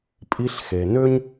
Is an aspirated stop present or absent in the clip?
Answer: absent